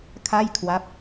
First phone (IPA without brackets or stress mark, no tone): kʰ